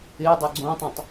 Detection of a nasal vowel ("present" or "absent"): present